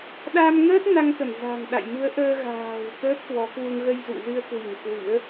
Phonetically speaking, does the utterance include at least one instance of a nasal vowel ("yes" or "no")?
no